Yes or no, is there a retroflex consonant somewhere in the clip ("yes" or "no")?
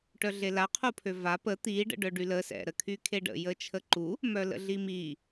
yes